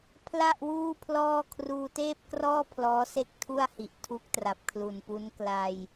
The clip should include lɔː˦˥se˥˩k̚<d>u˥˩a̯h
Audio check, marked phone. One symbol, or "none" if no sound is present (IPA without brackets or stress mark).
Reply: tʰ